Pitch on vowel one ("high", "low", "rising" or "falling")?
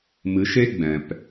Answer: rising